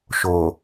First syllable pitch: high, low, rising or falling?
low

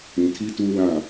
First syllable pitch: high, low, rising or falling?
low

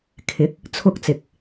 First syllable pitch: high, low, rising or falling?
rising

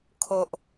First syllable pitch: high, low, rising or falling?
low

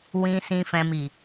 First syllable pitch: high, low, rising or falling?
low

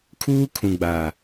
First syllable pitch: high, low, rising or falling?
high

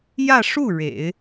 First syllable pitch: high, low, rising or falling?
falling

